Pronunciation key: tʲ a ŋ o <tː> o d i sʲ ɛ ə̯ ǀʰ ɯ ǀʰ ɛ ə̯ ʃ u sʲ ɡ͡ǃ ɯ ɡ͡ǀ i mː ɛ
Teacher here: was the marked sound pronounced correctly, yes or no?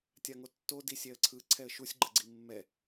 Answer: yes